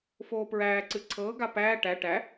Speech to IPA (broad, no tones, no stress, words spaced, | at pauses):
foːpɹæːǀɨ ǀʰɤːɡa pæː ʈæ ʈæ